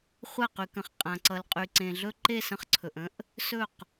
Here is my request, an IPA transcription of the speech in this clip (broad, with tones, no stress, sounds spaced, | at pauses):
χʷ a˧˩ q y˩ k ə̃˩ χ qʼ ã˩ ǀ ʌ˩ l qʼ y˩ ǀ ẽ˩ ɮ ɵ˧ ǃ e˧˩ s ə̃˧ χ ǀʰ ɵ˩ ʔ ə̃˧ ʔ | s ɵ˧˩ q